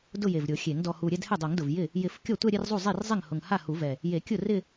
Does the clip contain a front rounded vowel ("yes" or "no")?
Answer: no